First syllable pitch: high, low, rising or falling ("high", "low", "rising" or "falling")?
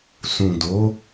low